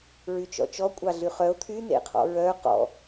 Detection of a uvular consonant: present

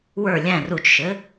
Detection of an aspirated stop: absent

